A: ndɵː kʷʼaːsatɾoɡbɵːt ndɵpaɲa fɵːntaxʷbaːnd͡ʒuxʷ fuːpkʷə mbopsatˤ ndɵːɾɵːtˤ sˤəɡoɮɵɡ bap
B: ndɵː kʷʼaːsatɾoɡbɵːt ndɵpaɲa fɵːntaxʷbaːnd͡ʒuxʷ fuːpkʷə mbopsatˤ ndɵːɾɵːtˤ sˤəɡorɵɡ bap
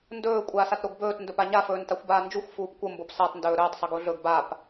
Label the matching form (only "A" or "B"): A